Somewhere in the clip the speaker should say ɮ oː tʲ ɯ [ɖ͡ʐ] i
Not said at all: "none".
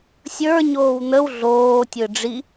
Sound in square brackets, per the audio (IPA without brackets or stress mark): ɖ͡ʐ